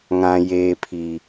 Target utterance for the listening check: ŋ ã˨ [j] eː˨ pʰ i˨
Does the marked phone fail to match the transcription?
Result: no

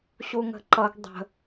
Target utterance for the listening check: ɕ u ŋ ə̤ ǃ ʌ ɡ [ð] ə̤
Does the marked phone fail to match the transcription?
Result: yes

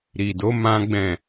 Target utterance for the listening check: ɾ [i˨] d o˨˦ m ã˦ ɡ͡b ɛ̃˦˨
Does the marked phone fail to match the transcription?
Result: no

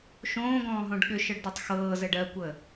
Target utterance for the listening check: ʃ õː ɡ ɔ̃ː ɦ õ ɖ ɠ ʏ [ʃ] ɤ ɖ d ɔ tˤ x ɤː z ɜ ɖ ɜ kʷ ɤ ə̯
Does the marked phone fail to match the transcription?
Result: no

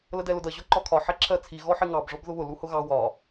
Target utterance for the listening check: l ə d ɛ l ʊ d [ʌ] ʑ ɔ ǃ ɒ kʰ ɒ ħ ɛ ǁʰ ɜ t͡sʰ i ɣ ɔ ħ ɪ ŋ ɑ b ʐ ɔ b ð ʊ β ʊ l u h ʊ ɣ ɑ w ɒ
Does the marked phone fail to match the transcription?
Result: no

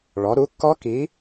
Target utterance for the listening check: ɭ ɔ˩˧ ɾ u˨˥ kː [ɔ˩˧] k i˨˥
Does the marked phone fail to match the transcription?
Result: yes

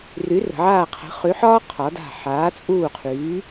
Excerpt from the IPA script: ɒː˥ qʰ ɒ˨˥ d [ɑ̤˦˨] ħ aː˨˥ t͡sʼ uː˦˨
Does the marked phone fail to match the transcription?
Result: yes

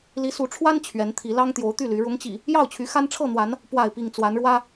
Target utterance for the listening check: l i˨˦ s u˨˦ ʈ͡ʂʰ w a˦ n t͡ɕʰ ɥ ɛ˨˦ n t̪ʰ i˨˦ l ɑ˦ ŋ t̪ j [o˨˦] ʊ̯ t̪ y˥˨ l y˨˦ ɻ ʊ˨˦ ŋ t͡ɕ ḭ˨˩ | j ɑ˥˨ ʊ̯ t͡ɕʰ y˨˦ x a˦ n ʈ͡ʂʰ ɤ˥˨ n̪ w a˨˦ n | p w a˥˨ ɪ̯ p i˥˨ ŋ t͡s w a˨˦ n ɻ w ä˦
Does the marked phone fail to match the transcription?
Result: no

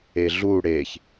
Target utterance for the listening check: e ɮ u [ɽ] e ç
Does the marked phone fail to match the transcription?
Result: no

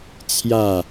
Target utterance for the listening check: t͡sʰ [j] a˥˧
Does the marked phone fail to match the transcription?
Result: no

